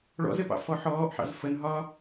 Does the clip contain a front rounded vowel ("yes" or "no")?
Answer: no